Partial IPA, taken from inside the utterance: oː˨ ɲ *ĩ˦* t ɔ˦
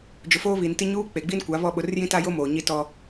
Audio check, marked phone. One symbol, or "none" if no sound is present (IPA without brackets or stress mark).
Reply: i˦